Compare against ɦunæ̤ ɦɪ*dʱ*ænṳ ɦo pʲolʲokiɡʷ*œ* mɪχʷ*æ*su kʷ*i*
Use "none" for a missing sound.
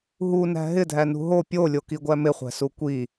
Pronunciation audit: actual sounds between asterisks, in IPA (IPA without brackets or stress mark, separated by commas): dʱ, æ, æ̤, i